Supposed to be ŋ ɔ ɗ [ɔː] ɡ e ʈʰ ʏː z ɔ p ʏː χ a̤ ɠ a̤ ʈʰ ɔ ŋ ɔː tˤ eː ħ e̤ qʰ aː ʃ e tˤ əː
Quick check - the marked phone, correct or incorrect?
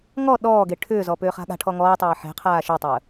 correct